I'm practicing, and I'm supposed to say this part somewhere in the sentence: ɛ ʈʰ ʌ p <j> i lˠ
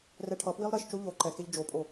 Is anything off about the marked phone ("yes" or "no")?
yes